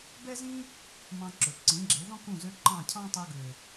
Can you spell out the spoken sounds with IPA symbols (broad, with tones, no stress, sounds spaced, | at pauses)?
b ɛ˦ z ĩ˦ | m ɑ̃˧ ǁ ɵ˨ ǀ ĩ˨˦ ɡ͡ǁ e˨˦ ð ɔ̃˦ k ũ˦˨ z ø˧ ǃ ɑ̃˦˨ cʰ ɑ̃˦ tˤ u˧ ɡ ø˨